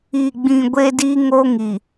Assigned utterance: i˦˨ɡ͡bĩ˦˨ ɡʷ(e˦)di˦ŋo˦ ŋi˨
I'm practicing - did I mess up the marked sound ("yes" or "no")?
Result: no